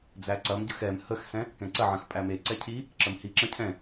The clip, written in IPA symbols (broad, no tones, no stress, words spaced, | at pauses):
d͡zæǀɐmɟəx ɛm həxsɛ̃ | kɛ̃ǀɐʕɐ̃x pʼæmeǀɛ cʰi | ǁəmhiǁɐ̃ cʰɛ̃